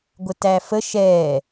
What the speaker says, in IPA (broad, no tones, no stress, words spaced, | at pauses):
ɡʷətæfə ʃɛː